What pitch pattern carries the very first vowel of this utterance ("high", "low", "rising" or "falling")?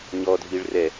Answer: low